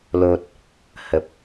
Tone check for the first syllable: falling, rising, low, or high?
low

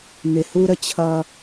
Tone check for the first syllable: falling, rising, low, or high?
low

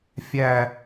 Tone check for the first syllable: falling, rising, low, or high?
falling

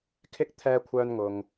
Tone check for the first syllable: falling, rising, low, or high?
high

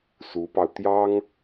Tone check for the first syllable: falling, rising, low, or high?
rising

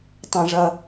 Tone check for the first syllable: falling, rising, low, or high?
high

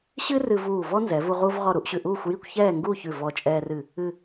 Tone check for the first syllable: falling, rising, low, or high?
high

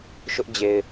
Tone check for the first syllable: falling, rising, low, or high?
high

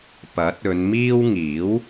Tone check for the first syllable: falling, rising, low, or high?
rising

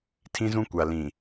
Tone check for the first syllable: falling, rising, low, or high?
high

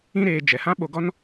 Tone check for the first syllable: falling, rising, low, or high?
high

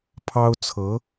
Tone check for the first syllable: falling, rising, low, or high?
high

